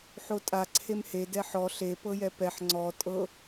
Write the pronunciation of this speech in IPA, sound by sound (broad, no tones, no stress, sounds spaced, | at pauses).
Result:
ħ o tʼ a ǀʰ e m h e d ɛ ħ ɔ ɬ e p ɤ j ɛ p ɛ ħ ŋ͡ǀ ɔ tʼ ɤ